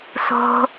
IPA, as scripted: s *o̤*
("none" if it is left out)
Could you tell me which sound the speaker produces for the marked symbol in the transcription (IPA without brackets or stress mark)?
o̤